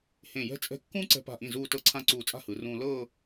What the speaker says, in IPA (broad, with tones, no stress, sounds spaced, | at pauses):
h ẽ˧˩ j ɛ̤˥ t͡sʼ ɛ̤˥˧ kː ũː˥ ǀ ɛ̤˧ p a̤˧˩ ʔ ĩ˧˩ z uː˥˧ t ɤ˥ ǀʰ ã˥ ǀ uː˧˩ t͡sʼ a̤˥˧ h ɯ˩˧ r ũː˧ l ɤː˥˧